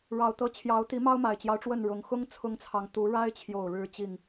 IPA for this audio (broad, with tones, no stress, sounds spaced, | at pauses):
ɻ ɑ˨˦ ʊ̯ t̪ ɤ˨˦ t͡ɕʰ j ɑ˨˦ ʊ̯ t̪ i˨˦ m ɑ˦ ʊ̯ m a˨˩ ɪ̯ t͡ɕ j ɑ˦ ʊ̯ ʈ͡ʂ w ə˥˨ n ɻ ʊ˨˩ ŋ x ʊ˦ ŋ t͡sʰ ʊ˦ ŋ t͡sʰ ɑ˨ ŋ t̪ u˨˦ ɻ a˦ ɪ̯ t͡ɕʰ j o˥˨ ʊ̯ ɻ ɻ̩˦ t͡ɕ i˥˨ ŋ